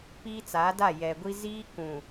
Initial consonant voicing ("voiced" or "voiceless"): voiceless